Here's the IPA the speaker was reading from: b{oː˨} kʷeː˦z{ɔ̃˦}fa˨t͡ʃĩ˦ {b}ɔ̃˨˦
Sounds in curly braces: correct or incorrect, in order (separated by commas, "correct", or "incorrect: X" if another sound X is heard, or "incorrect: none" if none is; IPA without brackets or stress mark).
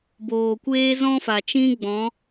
correct, correct, incorrect: ɡ͡b